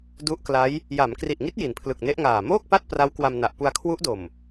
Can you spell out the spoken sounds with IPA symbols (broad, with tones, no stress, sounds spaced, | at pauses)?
d u˦˥ ʔ k l a˦˥ j | j a˩˦ m k r i˨˩ ʔ ŋ i˦˥ t̚ j i˩˦ n pʰ l ɯ˨˩ k̚ n e˦˥ ʔ ŋ aː˨˩ m oː˥˩ k̚ p a˥˩ t̚ p r a˦˥ w k w a˧ m n a˨˩ ʔ p u˧ a̯ kʰ w u˦˥ ʔ d o˨˩ m